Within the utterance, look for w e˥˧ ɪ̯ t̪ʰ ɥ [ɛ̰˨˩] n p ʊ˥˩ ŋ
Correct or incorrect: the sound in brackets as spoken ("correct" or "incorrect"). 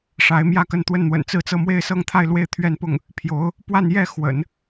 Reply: incorrect